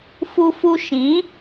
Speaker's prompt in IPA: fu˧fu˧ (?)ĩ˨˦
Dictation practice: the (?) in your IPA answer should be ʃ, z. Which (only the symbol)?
ʃ